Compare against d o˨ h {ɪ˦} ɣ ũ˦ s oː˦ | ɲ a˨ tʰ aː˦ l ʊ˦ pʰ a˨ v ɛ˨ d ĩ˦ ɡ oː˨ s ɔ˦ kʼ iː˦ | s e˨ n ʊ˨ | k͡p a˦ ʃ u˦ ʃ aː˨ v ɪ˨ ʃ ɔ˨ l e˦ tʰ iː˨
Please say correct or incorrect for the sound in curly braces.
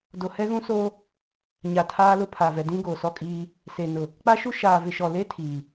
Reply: incorrect